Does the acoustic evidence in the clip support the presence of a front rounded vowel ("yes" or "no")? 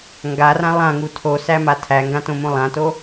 no